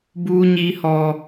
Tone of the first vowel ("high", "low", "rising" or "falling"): high